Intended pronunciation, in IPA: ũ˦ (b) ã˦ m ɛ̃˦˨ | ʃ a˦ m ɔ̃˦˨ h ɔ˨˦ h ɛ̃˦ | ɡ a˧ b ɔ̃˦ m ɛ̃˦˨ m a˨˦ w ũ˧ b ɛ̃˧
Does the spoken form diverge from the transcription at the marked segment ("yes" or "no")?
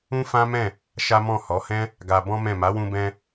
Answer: yes